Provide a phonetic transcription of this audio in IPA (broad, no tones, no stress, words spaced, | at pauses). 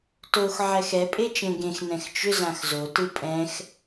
tox ʕɛxɛ pʼet͡ʃẽɡẽx nɛ̃xt͡ʃʏ zãxzo tɯpʼɛ̃x